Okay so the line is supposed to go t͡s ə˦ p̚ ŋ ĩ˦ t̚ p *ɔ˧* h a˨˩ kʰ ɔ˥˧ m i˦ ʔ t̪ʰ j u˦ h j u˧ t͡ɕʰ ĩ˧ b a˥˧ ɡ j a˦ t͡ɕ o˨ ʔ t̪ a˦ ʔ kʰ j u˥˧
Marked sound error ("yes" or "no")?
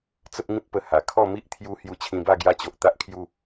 yes